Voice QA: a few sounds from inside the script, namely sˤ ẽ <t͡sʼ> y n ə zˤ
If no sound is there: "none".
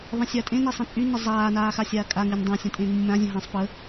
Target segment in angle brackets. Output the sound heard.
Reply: t͡sʼ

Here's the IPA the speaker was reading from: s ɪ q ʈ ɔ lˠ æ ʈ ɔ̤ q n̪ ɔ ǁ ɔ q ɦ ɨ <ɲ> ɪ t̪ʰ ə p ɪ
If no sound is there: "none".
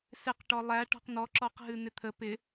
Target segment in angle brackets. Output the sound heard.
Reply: n̪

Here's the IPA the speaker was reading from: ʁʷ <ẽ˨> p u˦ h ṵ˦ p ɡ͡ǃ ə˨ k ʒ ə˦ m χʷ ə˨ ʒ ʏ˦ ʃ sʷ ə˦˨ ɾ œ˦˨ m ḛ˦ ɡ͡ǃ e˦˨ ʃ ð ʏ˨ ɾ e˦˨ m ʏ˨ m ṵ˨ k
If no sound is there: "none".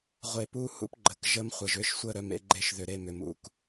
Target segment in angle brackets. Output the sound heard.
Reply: e˨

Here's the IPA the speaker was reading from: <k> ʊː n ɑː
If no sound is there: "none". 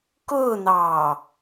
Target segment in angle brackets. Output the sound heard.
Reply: k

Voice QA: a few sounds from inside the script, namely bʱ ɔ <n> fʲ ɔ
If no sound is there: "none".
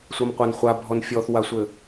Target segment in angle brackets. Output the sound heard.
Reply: n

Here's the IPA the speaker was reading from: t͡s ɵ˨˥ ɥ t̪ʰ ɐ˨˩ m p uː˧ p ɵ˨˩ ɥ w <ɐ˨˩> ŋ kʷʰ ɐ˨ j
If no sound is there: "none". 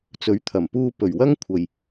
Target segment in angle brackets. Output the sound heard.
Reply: ɐ˥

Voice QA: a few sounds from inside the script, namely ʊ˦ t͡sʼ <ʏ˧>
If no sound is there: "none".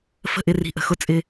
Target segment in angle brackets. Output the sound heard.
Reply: ɪ˧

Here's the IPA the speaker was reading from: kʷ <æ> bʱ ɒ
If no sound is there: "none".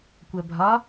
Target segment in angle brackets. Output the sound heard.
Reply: æ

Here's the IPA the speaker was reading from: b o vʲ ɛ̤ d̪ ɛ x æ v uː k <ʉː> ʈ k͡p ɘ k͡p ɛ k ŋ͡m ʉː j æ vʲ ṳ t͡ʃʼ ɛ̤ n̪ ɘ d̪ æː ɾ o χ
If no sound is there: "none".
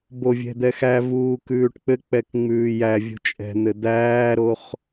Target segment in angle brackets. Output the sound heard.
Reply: ʉː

